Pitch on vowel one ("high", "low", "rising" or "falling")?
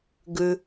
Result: low